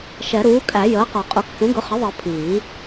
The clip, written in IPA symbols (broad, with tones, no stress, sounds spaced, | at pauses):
ʃ ɛ˨˩˦ ɾ uː˩˥ kʼ æ˨˩˦ j əː˩˥ q ɒ˨˩˦ qʼ u˨˩˦ k x ũ˩˥ ɡ ʊ˩˥ χ ɪ˩˥ ðˤ ɜ˨˩˦ pʰ iː˨˩˦